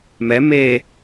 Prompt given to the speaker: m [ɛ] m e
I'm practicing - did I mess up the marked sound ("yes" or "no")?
no